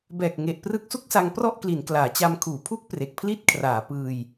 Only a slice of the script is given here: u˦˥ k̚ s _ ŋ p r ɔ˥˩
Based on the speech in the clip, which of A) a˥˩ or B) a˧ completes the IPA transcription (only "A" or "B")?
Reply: B